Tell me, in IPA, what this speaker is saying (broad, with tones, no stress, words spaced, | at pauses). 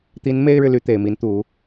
t̪i˧˥n me˥ɪ̯ɻɻ̩˨ly˧˥ t̪e˨˩ɪ̯mi˧˥nt̪u˨˩˦